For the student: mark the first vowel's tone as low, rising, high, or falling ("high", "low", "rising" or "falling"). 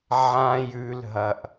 high